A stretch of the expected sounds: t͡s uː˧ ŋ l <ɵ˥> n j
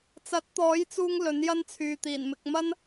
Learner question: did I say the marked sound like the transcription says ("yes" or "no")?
no